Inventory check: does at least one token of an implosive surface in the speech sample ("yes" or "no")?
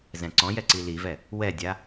no